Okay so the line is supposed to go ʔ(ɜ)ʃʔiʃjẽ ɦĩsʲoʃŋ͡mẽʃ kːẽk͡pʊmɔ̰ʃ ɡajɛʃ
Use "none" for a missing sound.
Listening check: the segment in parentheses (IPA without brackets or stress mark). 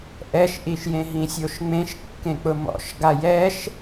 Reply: ɛ